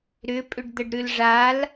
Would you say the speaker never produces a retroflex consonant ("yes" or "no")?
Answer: no